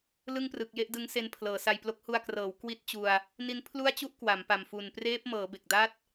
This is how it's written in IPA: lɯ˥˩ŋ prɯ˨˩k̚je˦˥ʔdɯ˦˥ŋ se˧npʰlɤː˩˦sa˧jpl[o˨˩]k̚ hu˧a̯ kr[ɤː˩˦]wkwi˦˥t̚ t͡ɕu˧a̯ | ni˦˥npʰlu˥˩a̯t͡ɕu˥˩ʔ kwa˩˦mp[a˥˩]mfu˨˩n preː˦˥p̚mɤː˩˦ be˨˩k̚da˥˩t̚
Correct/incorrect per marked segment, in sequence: incorrect: o˦˥, correct, incorrect: a˨˩

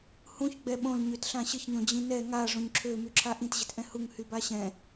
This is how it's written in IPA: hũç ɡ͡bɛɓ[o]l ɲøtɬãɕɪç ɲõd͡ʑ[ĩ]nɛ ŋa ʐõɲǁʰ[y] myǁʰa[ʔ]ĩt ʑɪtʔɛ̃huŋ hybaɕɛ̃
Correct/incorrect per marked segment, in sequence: incorrect: õ, correct, incorrect: ø, correct

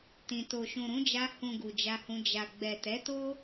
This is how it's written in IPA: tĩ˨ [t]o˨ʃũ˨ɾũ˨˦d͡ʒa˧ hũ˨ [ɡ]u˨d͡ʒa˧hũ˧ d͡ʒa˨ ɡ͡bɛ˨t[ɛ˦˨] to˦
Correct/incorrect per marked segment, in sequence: correct, correct, incorrect: ɛ˨˦

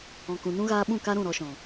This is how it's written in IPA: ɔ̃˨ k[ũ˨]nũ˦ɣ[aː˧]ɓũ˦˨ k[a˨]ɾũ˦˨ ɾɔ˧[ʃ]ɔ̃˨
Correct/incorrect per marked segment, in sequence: correct, correct, incorrect: a˦, correct

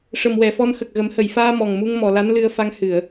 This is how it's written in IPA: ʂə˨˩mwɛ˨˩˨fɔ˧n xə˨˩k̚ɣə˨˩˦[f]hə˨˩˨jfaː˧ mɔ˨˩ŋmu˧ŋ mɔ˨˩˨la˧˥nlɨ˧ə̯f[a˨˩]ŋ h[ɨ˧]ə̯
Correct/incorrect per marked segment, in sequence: incorrect: m, incorrect: a˧, incorrect: ɨ˨˩˨

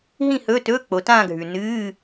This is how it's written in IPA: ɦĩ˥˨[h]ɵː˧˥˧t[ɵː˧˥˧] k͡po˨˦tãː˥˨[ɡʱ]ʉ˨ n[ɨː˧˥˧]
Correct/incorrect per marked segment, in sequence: correct, correct, correct, correct

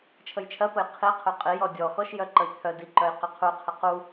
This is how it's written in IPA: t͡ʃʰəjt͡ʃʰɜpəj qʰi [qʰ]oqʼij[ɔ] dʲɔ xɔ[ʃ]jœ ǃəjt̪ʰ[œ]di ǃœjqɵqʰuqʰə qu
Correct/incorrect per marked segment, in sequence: correct, correct, correct, correct

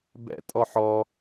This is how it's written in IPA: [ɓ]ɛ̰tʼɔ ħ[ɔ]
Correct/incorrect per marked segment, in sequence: incorrect: b, correct

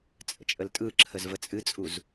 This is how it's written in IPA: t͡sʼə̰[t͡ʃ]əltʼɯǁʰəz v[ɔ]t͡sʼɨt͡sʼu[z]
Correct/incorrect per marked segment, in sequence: incorrect: t͡ʃʼ, incorrect: ə, correct

